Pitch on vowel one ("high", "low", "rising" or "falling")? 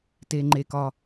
low